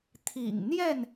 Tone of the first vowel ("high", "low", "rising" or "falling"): low